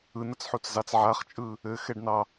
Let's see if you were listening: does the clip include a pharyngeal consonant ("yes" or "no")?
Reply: yes